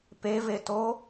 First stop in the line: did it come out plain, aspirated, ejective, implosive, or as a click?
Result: plain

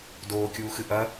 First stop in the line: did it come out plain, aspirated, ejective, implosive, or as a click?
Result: plain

